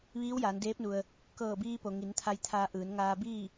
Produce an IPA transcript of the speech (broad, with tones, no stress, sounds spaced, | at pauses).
ʋ iː˧˥ w j aː˩˧ n d eː˧˥ p̚ n u˩ ə̯ | k ɤː˧˩ b iː˧ p o˩ ŋ i˩˧ n t̪ʰ a˧ j t̪ʰ aː˧ ʔ ɯː˩˧ n ŋ aː˧ b iː˥˨